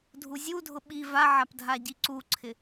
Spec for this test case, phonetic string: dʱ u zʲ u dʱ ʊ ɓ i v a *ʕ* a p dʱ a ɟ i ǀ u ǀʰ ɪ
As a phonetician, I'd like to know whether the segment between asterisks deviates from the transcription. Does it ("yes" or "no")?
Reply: no